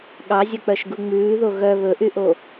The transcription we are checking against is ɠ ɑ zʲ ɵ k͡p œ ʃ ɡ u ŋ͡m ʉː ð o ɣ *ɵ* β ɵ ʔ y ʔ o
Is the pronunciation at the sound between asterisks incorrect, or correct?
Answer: incorrect: œ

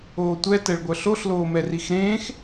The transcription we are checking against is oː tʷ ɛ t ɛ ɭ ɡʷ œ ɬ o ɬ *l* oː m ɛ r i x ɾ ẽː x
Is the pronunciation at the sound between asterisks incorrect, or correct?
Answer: correct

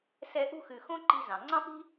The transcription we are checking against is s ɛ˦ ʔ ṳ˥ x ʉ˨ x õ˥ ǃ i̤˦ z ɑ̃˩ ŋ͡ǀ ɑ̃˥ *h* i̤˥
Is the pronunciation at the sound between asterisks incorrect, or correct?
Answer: incorrect: p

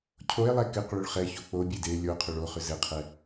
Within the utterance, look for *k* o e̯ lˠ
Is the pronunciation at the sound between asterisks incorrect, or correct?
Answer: incorrect: cʰ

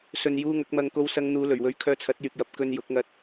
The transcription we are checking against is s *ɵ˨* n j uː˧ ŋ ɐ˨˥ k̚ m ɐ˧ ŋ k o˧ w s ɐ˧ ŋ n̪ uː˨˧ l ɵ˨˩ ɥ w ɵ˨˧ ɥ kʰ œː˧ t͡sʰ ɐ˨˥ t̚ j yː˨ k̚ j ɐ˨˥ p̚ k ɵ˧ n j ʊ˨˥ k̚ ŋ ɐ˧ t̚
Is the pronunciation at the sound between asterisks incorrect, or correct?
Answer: correct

